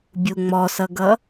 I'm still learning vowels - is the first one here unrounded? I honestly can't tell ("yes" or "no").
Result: no